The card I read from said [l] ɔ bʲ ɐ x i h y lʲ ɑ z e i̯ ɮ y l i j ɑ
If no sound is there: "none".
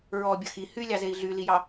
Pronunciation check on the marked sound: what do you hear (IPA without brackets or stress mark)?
ɹ